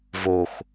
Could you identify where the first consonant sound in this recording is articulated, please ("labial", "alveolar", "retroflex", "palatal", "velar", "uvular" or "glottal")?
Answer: labial